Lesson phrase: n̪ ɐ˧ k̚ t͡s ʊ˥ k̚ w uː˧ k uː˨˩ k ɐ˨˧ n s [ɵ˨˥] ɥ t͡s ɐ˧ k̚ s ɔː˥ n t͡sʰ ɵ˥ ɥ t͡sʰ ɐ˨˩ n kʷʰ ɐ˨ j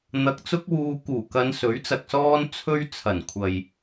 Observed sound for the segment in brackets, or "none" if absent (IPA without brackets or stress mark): ɵ˨˥